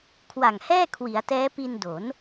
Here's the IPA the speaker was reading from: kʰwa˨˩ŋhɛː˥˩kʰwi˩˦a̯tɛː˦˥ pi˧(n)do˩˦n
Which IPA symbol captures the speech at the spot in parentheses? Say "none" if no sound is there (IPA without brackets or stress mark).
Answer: n